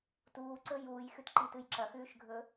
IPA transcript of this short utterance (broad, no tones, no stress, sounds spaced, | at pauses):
t uː ǀ ɵ j uː j x ʉ t ǃ i t ɨ j ǁ ɐ x ʉː ʃ ɡʱ ɵ